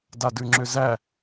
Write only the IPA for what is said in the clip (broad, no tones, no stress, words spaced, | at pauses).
dadʉŋ͡ǁʏzæ